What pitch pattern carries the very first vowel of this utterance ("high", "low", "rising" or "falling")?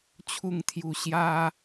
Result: falling